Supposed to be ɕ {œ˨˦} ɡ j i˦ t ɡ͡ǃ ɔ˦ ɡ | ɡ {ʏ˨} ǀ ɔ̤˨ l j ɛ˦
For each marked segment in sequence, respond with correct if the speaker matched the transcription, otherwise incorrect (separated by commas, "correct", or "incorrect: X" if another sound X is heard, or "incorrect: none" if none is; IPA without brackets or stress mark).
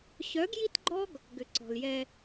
correct, correct